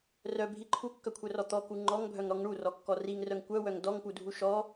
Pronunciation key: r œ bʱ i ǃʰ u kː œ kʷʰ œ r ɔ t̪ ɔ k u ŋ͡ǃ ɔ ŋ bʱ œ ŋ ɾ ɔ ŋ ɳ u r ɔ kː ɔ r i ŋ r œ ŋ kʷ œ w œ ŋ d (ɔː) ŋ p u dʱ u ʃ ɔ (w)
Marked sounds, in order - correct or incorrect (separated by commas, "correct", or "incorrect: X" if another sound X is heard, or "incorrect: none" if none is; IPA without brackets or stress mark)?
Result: incorrect: ɔ, incorrect: none